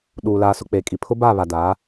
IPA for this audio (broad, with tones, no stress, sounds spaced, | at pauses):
ɗ uː˨ l aː˨ s ʊ˨ k͡p eː˨ kʼ i˨ pʰ ʊ˦ b aː˦˨ β a˨ d aː˨˦